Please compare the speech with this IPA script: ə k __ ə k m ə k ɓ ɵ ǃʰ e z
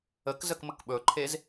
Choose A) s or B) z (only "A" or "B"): B